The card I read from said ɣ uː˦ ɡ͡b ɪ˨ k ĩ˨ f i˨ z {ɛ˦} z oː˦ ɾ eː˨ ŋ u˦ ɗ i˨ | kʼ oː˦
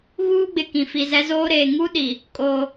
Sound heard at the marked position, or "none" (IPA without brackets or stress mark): ɛ˦